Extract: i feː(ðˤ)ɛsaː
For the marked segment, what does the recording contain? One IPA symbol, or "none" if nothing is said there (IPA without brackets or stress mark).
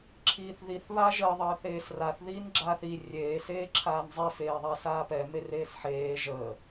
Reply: ðˤ